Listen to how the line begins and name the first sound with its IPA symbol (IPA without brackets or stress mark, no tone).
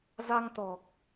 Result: z